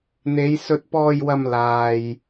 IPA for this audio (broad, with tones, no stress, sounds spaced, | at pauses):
n̪ e˨˧ j s ɵ˧ t̚ p ɔː˧ j w ɐ˧ m l aː˨ j